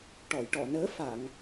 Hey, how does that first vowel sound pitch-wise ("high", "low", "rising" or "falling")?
low